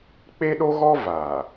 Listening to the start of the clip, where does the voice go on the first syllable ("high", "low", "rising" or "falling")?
high